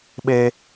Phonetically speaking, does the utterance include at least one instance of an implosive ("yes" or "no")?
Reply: yes